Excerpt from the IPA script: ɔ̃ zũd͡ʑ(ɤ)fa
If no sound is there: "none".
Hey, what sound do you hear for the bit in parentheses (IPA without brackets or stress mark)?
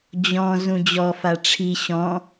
ɔ